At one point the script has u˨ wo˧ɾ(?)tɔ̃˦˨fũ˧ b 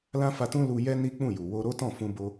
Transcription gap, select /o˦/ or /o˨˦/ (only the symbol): o˦